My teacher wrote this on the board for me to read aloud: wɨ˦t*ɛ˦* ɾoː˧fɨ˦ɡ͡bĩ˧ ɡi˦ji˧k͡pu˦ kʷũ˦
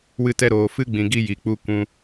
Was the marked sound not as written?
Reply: no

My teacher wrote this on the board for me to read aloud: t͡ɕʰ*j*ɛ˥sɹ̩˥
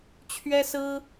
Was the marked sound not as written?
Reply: yes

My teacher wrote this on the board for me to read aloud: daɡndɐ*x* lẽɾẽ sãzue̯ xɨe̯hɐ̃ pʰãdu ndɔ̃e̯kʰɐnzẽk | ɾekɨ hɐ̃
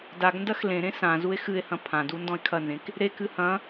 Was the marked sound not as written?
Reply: no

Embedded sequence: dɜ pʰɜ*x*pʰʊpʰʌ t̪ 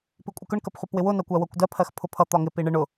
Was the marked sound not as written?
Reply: no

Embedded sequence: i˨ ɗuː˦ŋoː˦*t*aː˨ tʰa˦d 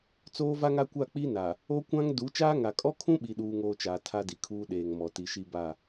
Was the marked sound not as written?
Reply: yes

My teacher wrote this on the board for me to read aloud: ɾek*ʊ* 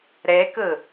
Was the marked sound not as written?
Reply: yes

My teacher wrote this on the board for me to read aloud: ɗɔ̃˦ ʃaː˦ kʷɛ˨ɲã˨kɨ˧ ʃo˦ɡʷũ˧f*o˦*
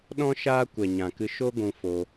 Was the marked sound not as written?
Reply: yes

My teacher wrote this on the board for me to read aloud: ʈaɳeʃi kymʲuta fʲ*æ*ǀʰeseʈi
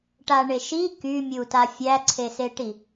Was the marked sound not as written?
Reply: no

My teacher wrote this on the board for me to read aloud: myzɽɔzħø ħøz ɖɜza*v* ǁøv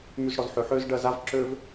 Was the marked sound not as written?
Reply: no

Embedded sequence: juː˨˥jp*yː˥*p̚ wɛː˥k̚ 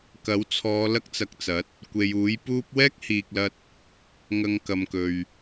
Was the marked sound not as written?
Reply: yes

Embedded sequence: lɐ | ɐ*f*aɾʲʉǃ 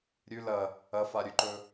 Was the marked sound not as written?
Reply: no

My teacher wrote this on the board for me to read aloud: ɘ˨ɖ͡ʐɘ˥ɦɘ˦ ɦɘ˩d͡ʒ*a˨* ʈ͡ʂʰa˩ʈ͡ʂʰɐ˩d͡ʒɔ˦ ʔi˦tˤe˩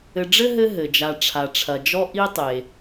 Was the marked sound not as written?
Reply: no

